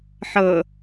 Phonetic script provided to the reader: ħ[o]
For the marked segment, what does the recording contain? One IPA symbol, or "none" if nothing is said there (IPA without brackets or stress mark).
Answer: ɤ